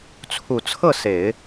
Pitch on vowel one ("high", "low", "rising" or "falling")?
low